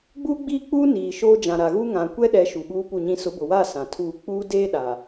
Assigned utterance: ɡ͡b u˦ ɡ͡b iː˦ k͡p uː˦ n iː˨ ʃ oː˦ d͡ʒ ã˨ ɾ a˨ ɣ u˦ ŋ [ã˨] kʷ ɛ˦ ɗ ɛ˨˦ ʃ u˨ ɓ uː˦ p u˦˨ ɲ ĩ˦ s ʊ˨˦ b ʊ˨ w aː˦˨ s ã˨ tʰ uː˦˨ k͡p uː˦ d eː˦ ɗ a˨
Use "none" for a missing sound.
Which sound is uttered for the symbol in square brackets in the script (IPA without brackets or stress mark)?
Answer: ã˨